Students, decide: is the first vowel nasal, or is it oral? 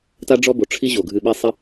oral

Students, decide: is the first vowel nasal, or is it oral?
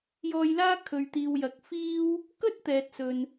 oral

